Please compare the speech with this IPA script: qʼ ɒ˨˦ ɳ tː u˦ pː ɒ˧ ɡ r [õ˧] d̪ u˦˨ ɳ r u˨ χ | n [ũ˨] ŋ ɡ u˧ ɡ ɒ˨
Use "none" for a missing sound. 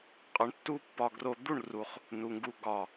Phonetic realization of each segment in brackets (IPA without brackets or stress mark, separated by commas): o˧, u˨